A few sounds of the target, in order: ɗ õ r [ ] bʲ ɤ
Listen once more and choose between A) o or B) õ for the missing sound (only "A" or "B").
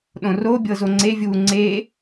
A